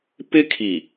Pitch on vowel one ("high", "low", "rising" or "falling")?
high